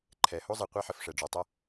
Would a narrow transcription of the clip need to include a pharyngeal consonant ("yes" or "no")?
yes